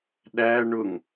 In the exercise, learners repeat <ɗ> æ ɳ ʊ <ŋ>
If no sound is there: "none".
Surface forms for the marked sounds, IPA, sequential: ɗ, ŋ

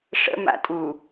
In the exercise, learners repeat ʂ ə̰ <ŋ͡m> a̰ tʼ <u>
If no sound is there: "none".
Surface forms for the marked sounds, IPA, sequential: m, u

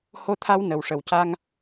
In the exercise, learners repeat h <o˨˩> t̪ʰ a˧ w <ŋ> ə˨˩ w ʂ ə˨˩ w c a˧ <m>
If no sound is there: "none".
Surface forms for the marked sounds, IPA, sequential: o˧, n, ŋ

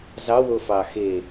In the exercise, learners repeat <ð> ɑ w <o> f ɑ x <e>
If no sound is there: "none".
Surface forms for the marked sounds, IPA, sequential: z, o, e

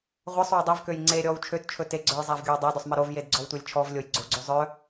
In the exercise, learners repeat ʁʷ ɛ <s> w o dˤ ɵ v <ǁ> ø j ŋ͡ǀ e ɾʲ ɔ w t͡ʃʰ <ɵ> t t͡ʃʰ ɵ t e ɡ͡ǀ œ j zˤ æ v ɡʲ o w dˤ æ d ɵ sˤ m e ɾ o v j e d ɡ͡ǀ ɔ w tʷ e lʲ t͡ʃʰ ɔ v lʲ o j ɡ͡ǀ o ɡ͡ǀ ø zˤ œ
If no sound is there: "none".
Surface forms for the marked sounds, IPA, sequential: sˤ, k, ø

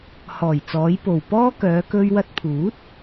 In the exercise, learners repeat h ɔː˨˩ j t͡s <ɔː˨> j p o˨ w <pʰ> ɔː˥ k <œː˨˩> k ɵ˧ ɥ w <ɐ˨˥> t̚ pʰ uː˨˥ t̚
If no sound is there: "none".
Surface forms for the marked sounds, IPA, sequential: ɔː˨˧, p, œː˨˧, ɐ˧

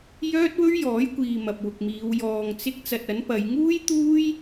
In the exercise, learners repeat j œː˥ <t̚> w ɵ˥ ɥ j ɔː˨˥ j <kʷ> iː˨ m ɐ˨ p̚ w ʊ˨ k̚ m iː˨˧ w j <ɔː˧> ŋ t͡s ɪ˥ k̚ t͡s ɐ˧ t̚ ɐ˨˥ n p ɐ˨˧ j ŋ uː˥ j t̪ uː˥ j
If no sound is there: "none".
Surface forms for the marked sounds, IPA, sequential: t̚, kʷ, ɔː˧

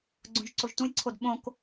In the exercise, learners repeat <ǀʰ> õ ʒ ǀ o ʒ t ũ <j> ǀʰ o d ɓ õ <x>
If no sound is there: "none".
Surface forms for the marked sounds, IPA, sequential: ɡ͡ǀ, j, k

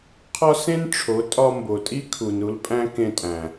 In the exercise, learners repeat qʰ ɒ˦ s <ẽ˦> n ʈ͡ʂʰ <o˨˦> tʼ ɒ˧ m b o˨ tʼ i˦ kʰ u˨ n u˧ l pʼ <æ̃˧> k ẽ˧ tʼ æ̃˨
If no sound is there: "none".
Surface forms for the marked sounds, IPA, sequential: ẽ˦, o˨˦, æ̃˦

